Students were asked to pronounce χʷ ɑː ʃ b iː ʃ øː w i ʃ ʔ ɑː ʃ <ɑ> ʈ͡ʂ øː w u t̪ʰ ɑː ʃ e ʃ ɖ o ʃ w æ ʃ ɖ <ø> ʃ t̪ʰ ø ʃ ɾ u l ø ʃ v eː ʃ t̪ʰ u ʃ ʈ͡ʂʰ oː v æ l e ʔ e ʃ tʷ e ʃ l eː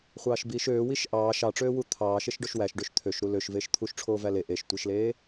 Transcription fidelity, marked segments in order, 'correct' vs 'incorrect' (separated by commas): correct, correct